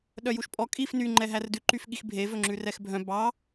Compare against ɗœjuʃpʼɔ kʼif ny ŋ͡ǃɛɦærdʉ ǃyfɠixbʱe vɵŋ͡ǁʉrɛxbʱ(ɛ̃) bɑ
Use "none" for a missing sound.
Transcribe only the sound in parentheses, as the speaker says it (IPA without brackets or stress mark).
œ̃